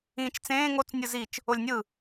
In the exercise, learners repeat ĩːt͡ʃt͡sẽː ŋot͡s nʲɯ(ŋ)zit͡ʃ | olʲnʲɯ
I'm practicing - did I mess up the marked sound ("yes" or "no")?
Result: yes